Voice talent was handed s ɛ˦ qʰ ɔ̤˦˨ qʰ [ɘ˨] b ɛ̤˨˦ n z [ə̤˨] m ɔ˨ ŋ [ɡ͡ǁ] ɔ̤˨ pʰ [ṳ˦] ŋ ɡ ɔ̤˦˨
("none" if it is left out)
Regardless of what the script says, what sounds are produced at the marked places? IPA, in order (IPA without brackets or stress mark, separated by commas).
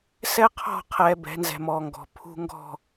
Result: ɛ˨, ɛ̤˨, ɡ, ṳ˦